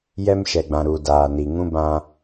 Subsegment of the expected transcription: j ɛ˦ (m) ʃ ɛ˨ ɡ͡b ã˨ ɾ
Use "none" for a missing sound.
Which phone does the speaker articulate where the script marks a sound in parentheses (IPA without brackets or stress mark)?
m